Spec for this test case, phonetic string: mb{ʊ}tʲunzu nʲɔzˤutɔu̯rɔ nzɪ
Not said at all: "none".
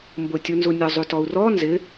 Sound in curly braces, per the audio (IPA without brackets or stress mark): ʊ